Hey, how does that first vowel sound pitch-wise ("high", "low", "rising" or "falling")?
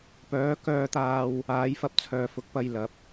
rising